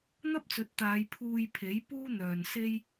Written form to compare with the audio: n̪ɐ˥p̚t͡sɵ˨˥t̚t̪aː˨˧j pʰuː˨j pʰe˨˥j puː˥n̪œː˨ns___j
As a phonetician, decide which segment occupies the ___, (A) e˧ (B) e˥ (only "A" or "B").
B